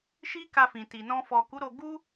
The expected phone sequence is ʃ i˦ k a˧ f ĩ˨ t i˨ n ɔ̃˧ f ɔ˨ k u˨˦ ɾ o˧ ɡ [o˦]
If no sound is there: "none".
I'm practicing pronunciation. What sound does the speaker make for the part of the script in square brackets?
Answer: u˦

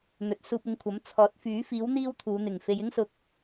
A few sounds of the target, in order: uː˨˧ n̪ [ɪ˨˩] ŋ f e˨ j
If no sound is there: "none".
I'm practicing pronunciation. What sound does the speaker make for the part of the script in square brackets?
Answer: ɪ˨˩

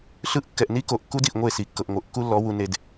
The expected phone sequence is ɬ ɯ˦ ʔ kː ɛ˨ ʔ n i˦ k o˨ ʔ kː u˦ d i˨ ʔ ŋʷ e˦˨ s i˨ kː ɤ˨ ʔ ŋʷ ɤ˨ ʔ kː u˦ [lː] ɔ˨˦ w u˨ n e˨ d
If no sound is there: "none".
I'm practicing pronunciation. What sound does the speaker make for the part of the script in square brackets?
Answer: lː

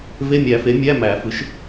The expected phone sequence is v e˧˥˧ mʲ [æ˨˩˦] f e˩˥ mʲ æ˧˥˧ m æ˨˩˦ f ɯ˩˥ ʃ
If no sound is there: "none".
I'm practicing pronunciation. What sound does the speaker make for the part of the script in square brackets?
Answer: æ˨˩˦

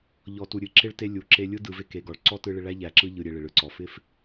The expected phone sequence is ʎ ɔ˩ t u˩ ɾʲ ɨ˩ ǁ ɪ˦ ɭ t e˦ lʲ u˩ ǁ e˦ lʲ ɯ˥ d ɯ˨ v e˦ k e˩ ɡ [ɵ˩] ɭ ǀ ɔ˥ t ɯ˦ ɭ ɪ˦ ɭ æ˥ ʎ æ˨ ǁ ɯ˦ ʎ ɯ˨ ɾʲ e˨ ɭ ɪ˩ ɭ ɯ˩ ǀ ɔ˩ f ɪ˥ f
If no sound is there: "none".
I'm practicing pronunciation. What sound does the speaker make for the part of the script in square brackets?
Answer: ɔ˩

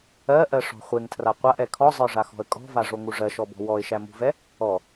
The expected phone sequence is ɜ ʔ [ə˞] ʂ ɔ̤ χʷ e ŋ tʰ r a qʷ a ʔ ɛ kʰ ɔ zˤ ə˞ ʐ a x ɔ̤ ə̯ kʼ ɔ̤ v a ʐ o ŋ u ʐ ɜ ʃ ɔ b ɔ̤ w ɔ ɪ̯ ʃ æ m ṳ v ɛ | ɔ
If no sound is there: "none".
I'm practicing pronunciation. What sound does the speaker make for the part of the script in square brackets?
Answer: ɜ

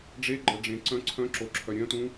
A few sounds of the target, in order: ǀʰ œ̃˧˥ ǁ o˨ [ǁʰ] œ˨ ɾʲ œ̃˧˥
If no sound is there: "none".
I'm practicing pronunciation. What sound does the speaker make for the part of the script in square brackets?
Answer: ǁʰ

